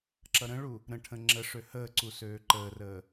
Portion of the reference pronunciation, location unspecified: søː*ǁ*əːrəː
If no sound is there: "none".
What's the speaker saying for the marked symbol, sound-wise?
ǃ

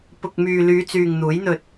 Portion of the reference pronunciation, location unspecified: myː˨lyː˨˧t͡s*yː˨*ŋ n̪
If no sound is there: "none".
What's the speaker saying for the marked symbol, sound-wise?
yː˨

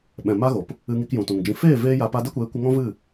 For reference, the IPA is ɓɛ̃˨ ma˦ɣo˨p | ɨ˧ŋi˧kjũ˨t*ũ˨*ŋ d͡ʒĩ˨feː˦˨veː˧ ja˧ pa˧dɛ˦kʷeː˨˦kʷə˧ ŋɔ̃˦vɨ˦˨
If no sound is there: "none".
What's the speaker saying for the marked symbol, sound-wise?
ũ˨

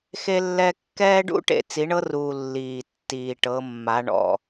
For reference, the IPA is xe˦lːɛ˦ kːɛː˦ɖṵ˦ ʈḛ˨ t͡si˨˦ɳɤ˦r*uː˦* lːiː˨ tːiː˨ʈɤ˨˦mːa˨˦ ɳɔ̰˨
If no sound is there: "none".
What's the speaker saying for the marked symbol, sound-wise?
uː˨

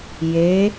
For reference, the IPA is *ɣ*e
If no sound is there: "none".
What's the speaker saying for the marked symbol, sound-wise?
j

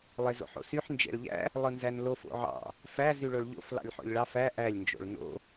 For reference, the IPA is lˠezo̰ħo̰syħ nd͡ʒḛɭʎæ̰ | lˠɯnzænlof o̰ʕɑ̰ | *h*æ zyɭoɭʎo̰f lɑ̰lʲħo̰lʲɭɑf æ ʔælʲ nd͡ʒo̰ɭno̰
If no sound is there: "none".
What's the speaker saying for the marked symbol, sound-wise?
f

